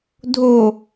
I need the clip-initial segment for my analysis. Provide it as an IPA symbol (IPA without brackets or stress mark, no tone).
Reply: dʱ